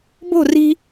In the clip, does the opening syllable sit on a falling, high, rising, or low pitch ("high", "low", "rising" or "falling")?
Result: falling